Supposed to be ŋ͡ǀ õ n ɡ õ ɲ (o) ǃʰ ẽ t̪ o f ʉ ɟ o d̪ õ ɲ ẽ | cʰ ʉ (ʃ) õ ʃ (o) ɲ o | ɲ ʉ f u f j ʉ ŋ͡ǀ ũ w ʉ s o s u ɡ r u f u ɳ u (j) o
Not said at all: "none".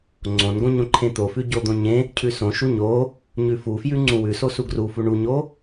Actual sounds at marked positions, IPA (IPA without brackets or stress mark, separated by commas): õ, s, u, ɲ